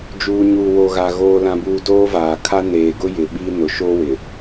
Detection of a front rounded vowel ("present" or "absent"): absent